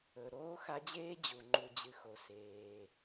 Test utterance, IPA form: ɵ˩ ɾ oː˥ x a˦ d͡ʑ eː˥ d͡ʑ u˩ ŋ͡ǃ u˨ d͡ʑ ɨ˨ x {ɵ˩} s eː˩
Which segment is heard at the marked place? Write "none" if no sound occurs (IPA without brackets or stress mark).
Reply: o˩